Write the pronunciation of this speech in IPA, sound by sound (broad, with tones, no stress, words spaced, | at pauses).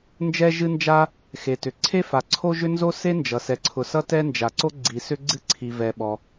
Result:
nd͡ʒɛ˥ʒɨ˥nd͡ʒa˥ | xe˩tʏ˩ ǀʰe˥fa˩ǀʰo˥ʒʏ˥ nzo˥se˥nd͡ʒʌ˩ sɛ˩ǀʰʊ˩ sʌ˥tɛ˥nd͡ʒa˩ǀo˥ ɡ͡ǀi˩sʏ˥ ɡ͡ǀɨ˥ǀʰi˩vɛ˩ ɓɔ˩